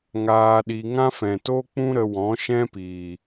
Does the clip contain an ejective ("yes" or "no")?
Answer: no